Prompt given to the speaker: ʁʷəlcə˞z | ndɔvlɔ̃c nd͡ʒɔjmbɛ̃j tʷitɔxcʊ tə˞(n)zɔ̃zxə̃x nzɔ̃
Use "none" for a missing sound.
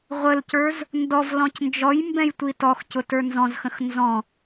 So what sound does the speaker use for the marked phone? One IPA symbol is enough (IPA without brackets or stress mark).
n